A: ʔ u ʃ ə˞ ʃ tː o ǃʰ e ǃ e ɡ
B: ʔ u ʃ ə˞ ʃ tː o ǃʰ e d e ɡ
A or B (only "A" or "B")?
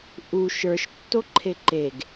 A